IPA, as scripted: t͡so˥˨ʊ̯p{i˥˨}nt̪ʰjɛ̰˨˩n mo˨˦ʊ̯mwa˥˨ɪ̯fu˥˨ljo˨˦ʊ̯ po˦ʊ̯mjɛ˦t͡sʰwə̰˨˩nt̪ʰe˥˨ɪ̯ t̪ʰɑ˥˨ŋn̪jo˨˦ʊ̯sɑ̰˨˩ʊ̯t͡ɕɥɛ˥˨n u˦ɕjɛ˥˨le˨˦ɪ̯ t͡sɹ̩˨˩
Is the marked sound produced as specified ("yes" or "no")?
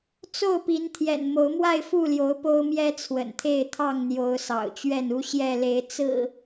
no